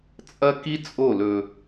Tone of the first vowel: high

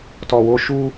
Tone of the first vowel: low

